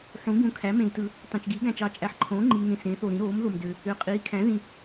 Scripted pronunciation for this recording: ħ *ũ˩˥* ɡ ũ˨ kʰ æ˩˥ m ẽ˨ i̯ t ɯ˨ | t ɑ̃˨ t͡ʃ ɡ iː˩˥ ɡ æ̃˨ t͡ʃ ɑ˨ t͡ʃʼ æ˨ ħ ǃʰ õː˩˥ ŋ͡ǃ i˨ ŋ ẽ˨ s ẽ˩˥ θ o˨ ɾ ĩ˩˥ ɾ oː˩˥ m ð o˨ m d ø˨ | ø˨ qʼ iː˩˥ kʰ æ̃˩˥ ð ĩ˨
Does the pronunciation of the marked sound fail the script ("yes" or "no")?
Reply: no